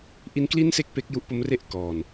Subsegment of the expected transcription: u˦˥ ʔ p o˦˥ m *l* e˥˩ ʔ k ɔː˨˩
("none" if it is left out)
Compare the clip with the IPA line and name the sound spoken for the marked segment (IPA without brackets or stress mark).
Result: r